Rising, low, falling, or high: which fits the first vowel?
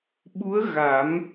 rising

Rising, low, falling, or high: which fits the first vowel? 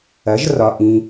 rising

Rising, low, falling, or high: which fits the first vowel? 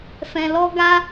low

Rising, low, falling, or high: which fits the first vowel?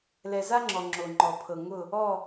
low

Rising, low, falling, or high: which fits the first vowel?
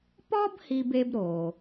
high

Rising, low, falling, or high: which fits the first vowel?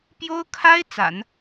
high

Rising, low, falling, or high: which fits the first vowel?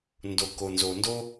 low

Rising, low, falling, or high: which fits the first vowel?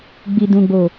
low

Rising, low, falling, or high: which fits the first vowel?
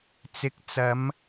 low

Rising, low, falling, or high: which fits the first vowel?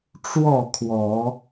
falling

